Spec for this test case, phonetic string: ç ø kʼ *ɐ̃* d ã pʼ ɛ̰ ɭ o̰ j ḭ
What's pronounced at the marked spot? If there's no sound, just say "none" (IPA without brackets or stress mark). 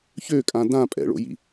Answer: ã